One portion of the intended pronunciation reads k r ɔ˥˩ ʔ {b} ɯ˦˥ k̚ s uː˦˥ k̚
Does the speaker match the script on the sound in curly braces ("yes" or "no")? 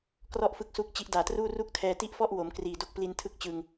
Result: no